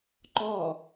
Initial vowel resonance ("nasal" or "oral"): oral